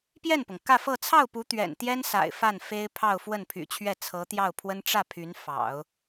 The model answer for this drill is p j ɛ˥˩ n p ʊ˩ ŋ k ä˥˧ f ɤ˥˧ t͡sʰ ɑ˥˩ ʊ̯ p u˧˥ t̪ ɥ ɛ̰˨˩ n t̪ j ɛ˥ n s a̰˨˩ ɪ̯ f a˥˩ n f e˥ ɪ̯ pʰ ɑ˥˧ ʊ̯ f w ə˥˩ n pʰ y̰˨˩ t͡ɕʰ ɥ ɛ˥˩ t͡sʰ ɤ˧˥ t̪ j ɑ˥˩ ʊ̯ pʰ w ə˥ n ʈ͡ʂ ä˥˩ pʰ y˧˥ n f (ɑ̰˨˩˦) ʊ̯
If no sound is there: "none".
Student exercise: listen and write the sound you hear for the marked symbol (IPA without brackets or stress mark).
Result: ɑ̰˨˩˦